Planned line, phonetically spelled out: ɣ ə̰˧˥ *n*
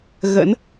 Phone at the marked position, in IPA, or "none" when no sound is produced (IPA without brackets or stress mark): n